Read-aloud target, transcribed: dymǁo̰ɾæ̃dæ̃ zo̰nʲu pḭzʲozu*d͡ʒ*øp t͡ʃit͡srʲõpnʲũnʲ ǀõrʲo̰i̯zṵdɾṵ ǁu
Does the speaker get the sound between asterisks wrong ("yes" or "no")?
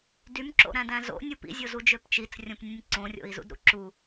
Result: no